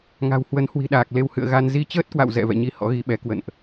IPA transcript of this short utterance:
ŋ a̤˨˩ w h w ə˨˦ n h w i̤˨˩ ɗ aː˨˩ k̚ l e˧ w h ɨ̰˧˨ ə̯ ɣ a˧ n z i˧ t͡ɕ əː˦˥ t̚ k w a̰˧˨ w z ɛ̰˧˨ v ɛ̰˧˨ ɲ i˨˦ h ɔ̰˧˥ ɣ i˨˦ ɓ ɛ˨˦ k w ə̰˧˨ n ʔ

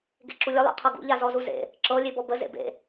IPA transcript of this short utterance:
ɡ ḛ ǁ u lʲ ə lˠ ḛ qʰ ɤ ɡ ṵ ʎ a z ɔ z u z ḛ | ǁ ɤ lʲ e b ɔ b ə z ḛ b ḛ

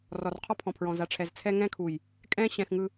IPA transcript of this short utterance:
r ɔ˨ r qʰ ɔ˦ pʰ ɔ̃˨ pʰ ɹ ɔ̃˨ z a˨ ʈ͡ʂʰ ɛ˨ z t͡sʰ ɛ˦ ŋ ɛ̃˦ kʰ u˨ j | kʼ ɛ̃˦ ɕ ɛ̃˨ x ŋ ɯ˨

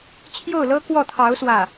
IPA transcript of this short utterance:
t͡ɕʰ j o˥˩ ʊ̯ l ɤ˥ k w ɔ˥˩ t̪ʰ ɑ˧˥ ʊ̯ s w ä˥˩

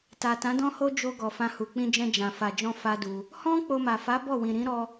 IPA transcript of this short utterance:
t a˨ t ã˨˦ d ɔ̃˦ h o˦ d͡ʒ o˧ ɡ ɔ˨ f ã˧ h u˨ k͡p ĩ˧ d͡ʒ ɛ̃˧ d͡ʒ ã˨ f a˨ d͡ʒ ɔ̃˧ f a˦ d u˧ | h ɔ̃˦ k͡p o˧ m a˨ f a˨˦ b ɔ˦˨ w ĩ˨ ɾ ĩ˨˦ ɾ ɔ˧

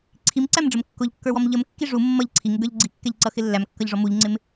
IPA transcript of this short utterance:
ǀʰ i m ǀ æ m ɖ͡ʐ ə m kː ʊ ʎ kː ə˞ w ɔ m ʎ ə m kː i ʐ u mː ʌ ʎ ǀʰ i ŋ ɪ ɡ ə˞ ʎ ɡ͡ǀ i kː ɛ ʎ ǀ ʌ x ɪ lː æ m kː ʌ ʎ ʐ ɔ m u ʎ ŋ͡ǀ ɪ m

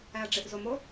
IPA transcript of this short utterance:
æ ɐ̯ ɖ͡ʐ e ʔ z o m o

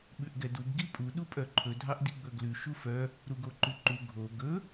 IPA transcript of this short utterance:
ɓ ʉ ʔ ɡ ɛ d u b ɡ i pʼ u ɗ u pʼ œ ǃʰ ɵ dʱ ɑ ʔ d i ɡ͡b ɵ ɡ l ʉ ʃ u f œ | ɾ u ɡ o ǃ ʉ ǃ u ɡʱ o ɡ ɵ

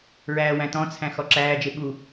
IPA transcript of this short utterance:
ɹ æː w æ̃ t ɔ̃ t͡sʰ æ̃ x ɔ ǁ æː d͡ʒ e ɓ u

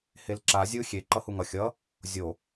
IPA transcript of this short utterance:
h e l ǁ a zʲ ɯ xʲ e ǃ ʌ h u ŋ ʌ xʲ ʌ | zʲ o

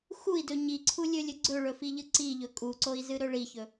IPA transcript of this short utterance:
x u i̯ d ɵ ɲ i ǀʰ u lʲ ɵ lʲ ɵ ɡ͡ǀ ɵ ɭ ɵ f i ʎ ɨ ǀ i ʎ ɵ kʼ u ǀ o i̯ z ɨ ɾ ɵ ɭ i ç ɵ

